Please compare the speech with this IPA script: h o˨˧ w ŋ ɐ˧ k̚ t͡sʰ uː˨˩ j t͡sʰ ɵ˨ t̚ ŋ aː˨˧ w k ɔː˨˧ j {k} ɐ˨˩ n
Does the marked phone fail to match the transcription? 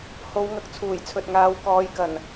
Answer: no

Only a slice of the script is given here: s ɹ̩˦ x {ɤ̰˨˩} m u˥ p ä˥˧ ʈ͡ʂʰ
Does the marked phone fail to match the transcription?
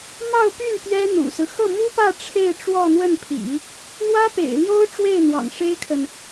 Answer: yes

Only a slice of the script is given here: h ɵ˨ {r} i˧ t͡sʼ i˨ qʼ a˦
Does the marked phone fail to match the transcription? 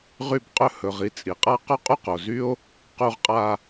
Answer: yes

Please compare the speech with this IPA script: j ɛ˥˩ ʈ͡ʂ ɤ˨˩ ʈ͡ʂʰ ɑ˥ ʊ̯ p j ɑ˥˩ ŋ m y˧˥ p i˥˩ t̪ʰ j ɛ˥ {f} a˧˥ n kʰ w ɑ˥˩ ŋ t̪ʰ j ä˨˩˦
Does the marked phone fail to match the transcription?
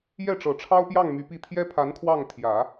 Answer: yes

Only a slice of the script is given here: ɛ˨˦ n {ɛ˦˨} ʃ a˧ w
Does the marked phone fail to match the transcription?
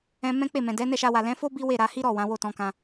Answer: no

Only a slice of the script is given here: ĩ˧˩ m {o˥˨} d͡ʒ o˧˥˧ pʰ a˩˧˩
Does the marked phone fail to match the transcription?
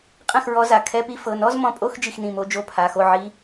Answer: yes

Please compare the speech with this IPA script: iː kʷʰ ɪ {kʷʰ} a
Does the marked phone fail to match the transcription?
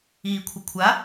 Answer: no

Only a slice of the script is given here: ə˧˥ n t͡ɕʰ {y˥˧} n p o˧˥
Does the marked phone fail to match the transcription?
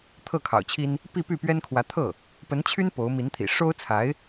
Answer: yes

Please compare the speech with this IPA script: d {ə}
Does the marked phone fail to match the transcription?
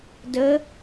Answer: no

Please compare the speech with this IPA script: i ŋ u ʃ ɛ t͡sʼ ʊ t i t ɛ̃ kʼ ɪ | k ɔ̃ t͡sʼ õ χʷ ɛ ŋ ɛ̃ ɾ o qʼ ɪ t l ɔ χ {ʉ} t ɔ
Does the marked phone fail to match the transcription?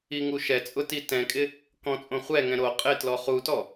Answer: yes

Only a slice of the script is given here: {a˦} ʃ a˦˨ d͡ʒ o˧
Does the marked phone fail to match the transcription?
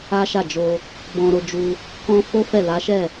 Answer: no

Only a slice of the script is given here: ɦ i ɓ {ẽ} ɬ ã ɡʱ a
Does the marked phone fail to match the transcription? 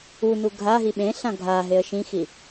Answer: no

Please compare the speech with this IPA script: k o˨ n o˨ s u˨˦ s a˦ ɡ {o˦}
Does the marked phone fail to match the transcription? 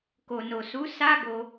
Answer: yes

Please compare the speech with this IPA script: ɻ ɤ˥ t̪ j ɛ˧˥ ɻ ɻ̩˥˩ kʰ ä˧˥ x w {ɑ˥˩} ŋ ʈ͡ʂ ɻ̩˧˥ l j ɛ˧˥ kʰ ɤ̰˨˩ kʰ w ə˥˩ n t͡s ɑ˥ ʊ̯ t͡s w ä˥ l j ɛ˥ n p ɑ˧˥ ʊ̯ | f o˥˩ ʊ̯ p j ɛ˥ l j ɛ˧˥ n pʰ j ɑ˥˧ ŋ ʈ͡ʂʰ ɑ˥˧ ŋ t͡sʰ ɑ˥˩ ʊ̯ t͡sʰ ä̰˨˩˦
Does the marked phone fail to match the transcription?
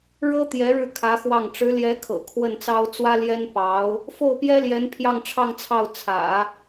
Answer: no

